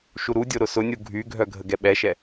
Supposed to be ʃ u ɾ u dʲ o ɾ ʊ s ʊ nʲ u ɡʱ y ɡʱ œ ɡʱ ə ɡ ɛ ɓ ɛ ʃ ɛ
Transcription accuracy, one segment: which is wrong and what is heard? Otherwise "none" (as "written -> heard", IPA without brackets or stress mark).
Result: none